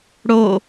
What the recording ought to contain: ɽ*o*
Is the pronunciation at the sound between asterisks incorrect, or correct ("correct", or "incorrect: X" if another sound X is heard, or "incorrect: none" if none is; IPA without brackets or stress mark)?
correct